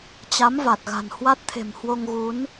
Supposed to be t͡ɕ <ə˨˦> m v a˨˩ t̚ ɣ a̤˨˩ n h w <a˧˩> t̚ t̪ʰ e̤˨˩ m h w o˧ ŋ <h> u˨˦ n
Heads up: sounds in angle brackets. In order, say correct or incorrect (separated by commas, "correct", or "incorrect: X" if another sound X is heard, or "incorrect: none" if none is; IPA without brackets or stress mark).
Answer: incorrect: a˨˦, incorrect: a˦˥, incorrect: ɣ